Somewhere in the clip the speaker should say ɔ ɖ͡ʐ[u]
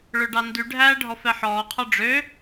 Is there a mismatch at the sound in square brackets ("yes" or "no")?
yes